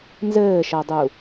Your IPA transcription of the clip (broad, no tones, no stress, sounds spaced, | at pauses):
n z ɘː ʃ ʌ dˤ u